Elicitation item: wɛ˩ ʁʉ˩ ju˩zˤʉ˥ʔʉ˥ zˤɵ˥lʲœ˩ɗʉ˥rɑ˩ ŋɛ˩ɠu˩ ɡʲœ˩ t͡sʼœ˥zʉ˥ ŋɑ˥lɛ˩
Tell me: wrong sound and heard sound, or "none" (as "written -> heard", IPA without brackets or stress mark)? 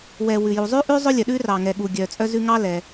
ʁ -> w